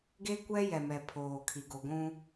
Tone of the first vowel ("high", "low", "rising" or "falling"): high